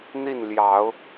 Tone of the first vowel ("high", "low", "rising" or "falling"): falling